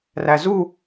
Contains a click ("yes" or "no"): no